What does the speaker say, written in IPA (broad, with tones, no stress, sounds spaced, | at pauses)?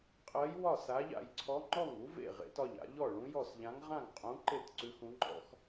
qʼ ɜ˧˥ j w ɒ˥˩ s a˧˥ ʎ a̰˥˩ j ǀʰ ɔ˧˥ ŋ͡ǃ ɔ˥˩ ŋ u˧˥ v ḛ˥˩ ʁ ḛ˧˥ t ɒ˥˩ ʎ a̰˧˥ ʎ ɔ˥˩ ɭ ũ˧˥ j ɔ˥˩ s ʎ ã˧˥ ŋ ʁ ã˥˩ ŋ qʼ ũ˧˥ ǃ e˥˩ t ǀ ʉ˧˥ x ũ˧˥ ŋ͡ǃ ɔ̰˧˥ x